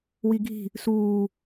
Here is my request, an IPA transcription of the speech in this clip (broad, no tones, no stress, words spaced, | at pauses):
wiɡʱi̤ | suː